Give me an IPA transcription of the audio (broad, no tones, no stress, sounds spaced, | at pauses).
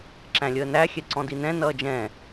ǁ æ̃ lʲ əː n æ xʲ ɛ ǀ ɔ̃ d i n ɛ̃ n ʌː d͡ʒ ɛ̃